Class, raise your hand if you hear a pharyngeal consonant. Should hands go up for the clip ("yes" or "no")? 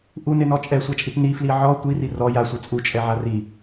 yes